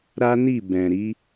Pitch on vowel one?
high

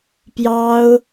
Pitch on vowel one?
high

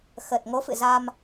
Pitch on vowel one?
low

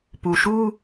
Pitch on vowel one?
low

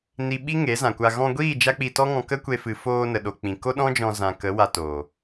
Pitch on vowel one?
low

